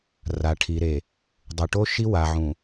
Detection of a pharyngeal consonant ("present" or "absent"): present